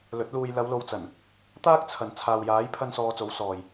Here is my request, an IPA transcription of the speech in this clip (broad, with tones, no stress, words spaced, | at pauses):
lɵ˨˥t̚ luː˧j lɐ˨˧wlo˨wt͡sɐ˨˩n | t̪aː˥k̚t͡sʰɐ˨n t͡sʰaː˨wjaː˨˥jpʰɐ˧n sɔː˧t͡so˨˥w sɔː˨j